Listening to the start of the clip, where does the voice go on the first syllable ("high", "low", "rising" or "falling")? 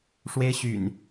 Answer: high